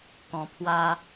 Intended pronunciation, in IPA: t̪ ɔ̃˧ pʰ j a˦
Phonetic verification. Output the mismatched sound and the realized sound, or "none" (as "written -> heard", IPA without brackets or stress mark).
j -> w